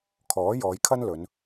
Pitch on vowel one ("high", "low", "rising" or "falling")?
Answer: rising